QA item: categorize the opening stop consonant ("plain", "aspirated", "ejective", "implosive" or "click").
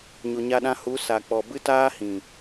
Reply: implosive